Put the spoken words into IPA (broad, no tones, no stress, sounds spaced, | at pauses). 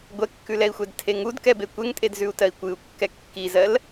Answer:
ɡʷ ɛ kː ʉ l ɛ i̯ xʷ ɛ d tʰ e ŋ u d k ɛ b e kʷ e ŋ tʼ e d z ʉ u̯ t ɜ i̯ kʷ ɨ u̯ kː ɛ kː i z ɜ l